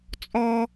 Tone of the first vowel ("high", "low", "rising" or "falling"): high